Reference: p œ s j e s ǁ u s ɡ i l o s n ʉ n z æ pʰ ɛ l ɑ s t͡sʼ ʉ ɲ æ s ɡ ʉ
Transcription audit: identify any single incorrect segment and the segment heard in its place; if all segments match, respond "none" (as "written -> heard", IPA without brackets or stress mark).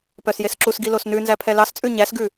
none